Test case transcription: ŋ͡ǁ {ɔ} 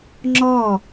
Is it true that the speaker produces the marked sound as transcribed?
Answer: yes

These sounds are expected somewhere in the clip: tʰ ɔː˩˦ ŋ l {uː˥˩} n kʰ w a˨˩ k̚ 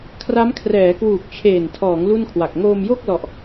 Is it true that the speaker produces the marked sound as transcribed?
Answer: no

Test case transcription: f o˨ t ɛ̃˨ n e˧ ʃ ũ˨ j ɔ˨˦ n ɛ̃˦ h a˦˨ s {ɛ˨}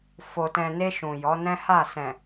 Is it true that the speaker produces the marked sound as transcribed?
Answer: no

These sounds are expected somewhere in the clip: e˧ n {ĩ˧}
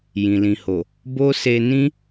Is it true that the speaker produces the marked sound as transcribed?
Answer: no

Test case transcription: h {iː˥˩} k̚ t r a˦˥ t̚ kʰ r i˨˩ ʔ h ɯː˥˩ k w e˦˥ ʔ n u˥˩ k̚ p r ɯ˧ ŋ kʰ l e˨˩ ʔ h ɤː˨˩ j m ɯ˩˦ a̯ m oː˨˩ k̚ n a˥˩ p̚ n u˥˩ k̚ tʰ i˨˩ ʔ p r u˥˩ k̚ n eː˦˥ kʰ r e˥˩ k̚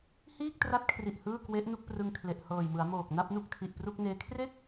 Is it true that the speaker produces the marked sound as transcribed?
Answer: yes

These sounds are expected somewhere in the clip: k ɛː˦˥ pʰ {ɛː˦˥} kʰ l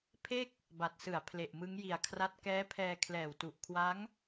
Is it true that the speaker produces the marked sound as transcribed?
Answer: no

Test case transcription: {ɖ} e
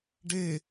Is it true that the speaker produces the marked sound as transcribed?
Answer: yes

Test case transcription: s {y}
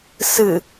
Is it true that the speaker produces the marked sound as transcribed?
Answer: no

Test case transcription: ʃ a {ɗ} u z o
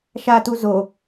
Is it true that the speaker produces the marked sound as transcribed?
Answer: no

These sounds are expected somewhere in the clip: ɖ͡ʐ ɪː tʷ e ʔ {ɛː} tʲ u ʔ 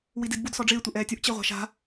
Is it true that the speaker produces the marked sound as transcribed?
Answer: yes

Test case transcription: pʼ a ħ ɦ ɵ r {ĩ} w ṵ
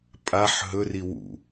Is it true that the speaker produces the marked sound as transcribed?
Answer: no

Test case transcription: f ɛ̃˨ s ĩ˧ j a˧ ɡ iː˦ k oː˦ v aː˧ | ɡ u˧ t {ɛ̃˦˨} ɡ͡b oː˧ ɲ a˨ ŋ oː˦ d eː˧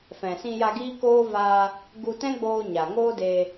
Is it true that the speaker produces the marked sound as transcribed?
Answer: no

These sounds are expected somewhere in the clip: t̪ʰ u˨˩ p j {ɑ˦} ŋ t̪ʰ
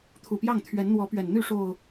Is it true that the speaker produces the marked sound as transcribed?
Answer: no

